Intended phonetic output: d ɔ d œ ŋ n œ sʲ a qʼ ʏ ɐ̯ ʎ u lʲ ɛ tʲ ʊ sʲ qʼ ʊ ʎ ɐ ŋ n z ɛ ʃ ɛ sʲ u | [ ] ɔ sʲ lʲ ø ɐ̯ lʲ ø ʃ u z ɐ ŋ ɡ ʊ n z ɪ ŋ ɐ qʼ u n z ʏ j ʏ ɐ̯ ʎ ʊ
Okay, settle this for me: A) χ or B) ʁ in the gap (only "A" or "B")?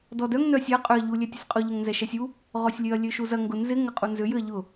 B